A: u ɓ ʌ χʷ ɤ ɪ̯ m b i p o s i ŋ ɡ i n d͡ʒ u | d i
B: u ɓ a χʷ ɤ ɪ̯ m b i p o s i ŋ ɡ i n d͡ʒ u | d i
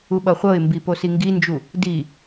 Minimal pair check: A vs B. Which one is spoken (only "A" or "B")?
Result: A